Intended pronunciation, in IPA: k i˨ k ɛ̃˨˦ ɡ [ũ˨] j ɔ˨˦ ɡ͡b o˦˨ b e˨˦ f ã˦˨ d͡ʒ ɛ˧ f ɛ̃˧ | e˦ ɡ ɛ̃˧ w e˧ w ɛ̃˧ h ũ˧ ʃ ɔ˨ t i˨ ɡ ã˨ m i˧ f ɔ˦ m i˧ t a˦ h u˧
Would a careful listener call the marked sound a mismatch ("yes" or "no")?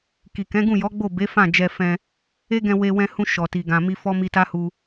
yes